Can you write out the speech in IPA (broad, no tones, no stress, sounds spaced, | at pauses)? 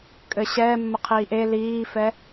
kʼ ɘ ɕ ɛː mː ə qʰ iː ʔ e l iː f ɛ